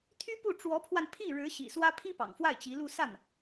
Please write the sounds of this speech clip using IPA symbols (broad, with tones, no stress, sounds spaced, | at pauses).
t̪ʰ y˥ p u˥˩ ʈ͡ʂ w ɔ˧˥ pʰ w a˧ n pʰ i˥˩ ɻ ɻ̩˧˥ ɕ ḭ˨˩ s w ä˥ pʰ i˥ p ɑ̰˨˩ ŋ f w a˥˩ ɪ̯ t͡ɕ i˧˥ l u˥˧ s a˥˩ n